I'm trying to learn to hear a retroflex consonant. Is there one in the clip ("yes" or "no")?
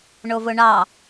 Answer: yes